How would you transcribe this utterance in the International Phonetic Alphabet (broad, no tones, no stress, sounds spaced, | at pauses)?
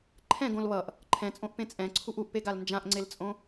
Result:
ǃʰ ɛ̃ ɡ õ l β ʌ ʔ | ǃʰ ɛ̃ t͡sʼ õ ʔ p ẽ t͡sʼ ɛ̃ ǀʰ u ʔ u ʔ p e ɡ a l n d͡ʒ ã ʔ ŋ͡ǀ e l t͡sʼ õ